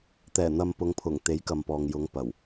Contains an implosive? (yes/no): no